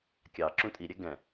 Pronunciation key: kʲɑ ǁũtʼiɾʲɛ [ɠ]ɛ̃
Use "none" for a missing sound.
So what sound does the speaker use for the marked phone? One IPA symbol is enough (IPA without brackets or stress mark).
ɡ